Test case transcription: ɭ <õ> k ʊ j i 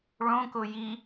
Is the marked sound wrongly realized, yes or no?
no